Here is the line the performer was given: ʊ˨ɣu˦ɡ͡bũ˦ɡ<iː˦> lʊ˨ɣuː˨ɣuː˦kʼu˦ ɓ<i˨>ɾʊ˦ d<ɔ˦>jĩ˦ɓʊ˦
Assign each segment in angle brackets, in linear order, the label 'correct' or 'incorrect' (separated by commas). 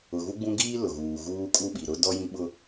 correct, correct, correct